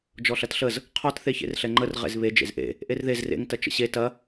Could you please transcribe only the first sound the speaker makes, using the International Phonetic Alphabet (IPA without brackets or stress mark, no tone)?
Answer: d͡ʒ